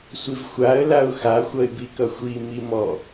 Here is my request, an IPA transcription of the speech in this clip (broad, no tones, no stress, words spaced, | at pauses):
sʷivxʷaə̯ laʊ̯xa xʷʌɪ̯bikʌxʷi mimɔ